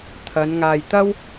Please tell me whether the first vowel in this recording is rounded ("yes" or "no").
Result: no